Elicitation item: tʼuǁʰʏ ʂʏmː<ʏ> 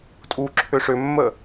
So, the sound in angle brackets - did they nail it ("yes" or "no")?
no